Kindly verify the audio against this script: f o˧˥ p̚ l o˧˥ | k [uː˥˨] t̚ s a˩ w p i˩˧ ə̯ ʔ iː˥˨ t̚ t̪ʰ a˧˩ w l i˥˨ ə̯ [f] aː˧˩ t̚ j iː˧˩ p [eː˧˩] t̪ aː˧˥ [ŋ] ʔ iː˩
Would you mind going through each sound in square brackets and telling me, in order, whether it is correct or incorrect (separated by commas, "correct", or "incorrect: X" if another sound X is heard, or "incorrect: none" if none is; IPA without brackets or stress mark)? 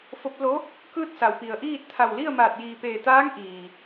incorrect: ɯː˥˨, incorrect: m, correct, correct